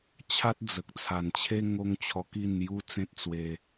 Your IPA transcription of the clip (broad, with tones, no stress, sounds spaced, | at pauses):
t͡ɕʰ a˦ t̚ d͡z ə˨ k̚ t͡sʰ a˨˩ n t͡ɕʰ e˦ ŋ o˦ ŋ t͡ɕʰ ɔ˧ k i˥˧ n j u˦ t͡s ẽ˦ t̚ t͡s w e˧